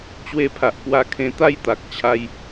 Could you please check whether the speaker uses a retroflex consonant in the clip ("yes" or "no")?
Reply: no